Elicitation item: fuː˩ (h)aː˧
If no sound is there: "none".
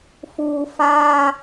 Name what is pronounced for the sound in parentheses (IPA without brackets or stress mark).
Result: f